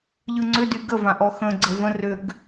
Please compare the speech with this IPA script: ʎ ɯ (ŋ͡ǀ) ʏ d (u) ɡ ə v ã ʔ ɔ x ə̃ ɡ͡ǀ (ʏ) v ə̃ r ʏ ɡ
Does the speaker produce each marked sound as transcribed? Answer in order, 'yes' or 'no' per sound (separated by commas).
yes, no, no